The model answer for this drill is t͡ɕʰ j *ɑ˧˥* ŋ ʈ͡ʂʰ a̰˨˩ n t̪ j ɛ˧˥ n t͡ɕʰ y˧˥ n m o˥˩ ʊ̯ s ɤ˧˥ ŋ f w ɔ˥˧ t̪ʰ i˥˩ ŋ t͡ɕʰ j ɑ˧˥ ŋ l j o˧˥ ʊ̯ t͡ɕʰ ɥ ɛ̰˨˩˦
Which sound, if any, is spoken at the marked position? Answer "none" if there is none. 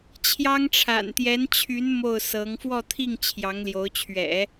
ɑ˥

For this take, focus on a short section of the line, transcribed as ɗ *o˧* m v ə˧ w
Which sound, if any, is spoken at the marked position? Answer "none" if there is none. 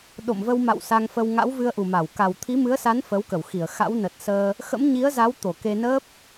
o̰˧˨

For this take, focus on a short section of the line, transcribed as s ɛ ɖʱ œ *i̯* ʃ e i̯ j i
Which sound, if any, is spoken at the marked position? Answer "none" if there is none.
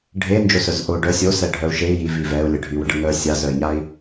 u̯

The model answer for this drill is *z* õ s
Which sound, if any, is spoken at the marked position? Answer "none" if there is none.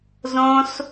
z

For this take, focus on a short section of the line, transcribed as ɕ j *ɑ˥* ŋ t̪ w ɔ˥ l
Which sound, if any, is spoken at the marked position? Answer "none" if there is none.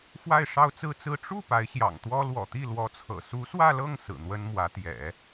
ɑ̰˨˩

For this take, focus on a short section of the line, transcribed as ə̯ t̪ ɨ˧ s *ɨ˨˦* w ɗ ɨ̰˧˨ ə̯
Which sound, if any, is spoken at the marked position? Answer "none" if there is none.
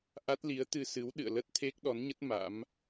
ɨ˨˦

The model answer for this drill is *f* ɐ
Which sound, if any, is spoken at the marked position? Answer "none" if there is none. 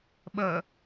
ɓ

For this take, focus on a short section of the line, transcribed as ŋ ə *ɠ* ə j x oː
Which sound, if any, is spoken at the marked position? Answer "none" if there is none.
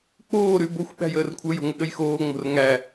ɠ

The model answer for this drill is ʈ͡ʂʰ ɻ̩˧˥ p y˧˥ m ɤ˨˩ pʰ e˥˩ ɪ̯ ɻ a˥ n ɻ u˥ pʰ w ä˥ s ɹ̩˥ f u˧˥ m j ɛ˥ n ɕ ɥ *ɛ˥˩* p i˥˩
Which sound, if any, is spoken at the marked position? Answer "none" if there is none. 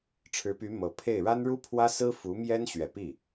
ɛ˨˩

